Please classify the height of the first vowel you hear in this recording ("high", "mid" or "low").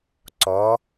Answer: mid